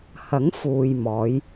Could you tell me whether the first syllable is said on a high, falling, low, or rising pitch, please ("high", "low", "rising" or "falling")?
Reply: rising